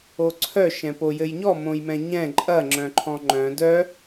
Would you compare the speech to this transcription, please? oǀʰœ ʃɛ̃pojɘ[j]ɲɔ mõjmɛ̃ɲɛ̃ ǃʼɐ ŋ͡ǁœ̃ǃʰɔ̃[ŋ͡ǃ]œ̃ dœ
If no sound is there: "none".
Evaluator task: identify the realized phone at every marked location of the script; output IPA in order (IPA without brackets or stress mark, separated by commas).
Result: j, ŋ͡ǃ